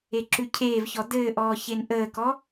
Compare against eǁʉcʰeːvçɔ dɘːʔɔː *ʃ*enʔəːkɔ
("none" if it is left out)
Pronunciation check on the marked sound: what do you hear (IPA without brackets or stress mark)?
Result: ç